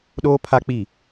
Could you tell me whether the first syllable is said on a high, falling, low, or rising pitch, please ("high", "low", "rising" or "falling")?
high